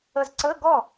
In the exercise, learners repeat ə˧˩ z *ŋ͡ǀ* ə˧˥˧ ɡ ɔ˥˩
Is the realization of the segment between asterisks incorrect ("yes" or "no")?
yes